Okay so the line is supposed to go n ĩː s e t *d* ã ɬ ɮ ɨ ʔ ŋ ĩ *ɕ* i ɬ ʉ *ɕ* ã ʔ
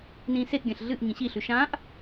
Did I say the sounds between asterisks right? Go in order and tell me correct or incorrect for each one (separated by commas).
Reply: incorrect, correct, incorrect